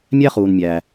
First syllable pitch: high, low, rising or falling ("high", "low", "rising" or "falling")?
high